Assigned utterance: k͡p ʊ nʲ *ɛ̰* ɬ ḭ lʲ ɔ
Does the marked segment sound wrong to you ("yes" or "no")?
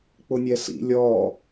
yes